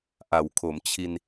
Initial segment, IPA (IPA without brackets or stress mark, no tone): ʔ